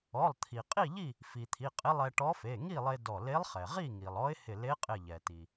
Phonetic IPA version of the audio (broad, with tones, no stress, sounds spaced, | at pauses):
ɔ˩˧˩ lˠ t̪ʰ i˩ qʼ i˥˨ ʎ i˥˨ | f i˩ t̪ʰ i˩˧˩ qʼ ɪ˧˥ lˠ ɛ˧ ʈ ɔ˧˥ f e˩˧˩ ŋ i˥˨ lˠ e˧ d ɔ˧˩ l e˧˥ lˠ χ ɛ˩ ʁ i˥˨ ŋ i˩ lˠ ɔ˧˥ ɪ̯ h ɪ˧˩ l e˧˥ qʼ ɪ˧˩ ʎ ɛ˩ t i˩